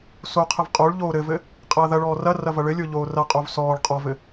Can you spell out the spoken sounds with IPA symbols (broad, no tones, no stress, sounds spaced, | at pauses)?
s o qʰ ɘ v qʼ o ɭ ʎ oː ɾ ɘ v ɘ | qʼ ɐː ð ɐ ɭ ɔː r ɐ r ɐ v ɐ ɭ ɘ lʲ o ʎ oː r ɐ qʼ o v s ɔː ɭ qʼ ɔ v ɘ